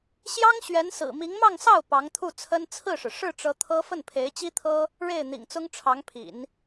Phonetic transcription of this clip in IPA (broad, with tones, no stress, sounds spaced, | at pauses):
ɕ j ɑ˥ ŋ ɕ ɥ ɛ˧˥ n s ɹ̩˨˩ m i˧˥ ŋ m ɑ˥˧ ŋ s ɑ˥˩ ʊ̯ p ɑ˧˥ ŋ t̪ʰ u˥˩ t͡sʰ ə˥ n t͡sʰ ɹ̩˥˩ ʂ ɻ̩˩ ʂ ɻ̩˥˩ ʈ͡ʂ ɤ˧˥ t̪ʰ ɤ˥ f ə˥˩ n pʰ e˧˥ ɪ̯ t͡ɕ i˥ t̪ʰ ɤ˥ | ɻ e˥˩ ɪ̯ n̪ ḭ˨˩ ŋ t͡s ʊ˥ ŋ ʈ͡ʂʰ ɑ˧˥ ŋ pʰ ḭ˨˩˦ n